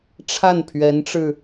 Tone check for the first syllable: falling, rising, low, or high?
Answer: falling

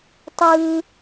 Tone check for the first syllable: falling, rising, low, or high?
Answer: high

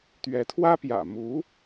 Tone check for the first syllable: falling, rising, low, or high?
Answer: rising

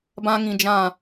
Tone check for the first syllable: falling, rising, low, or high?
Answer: high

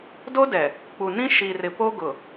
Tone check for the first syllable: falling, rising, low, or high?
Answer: high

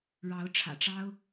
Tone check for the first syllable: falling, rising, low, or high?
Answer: rising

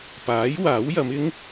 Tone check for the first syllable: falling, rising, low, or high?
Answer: rising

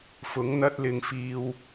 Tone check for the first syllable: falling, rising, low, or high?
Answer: rising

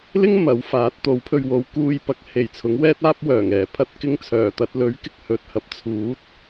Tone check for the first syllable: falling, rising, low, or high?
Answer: high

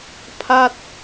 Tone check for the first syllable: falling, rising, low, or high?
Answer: falling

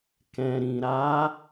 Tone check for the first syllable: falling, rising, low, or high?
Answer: low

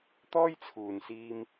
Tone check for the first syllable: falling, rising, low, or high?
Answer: high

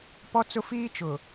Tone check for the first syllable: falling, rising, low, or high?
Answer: high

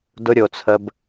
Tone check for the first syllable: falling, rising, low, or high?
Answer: high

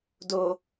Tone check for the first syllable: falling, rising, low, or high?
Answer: low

